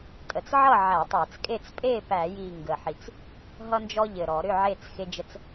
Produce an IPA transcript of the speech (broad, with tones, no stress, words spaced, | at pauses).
tʼə˨˩t͡sʕʌ˥˨ ʕæ˧˩˧tˤæ˧˩˧t͡skʼe˥˨t͡s pʼe˥˨pæ˧˩˧ji˨˩ ŋɡə˨˩ħi˨˩t͡s | ɦʌ˦nd͡ʒɔ˦ʎɘ˨˩ ɾɔ˧˩˧ɾʏ˥˨ʕe˥˨t͡s xe˦d͡ʒə˦t͡s